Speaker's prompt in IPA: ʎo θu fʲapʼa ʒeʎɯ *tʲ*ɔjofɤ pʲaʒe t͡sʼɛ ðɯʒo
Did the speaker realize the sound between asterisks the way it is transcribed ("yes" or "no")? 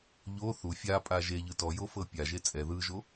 no